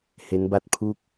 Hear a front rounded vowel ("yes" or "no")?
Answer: no